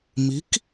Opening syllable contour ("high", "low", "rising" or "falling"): rising